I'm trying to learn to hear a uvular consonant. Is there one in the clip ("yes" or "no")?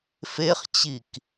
yes